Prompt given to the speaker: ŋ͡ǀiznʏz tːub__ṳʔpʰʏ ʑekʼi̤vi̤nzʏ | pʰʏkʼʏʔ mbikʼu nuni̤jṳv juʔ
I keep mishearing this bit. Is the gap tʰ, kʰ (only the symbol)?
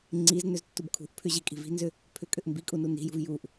kʰ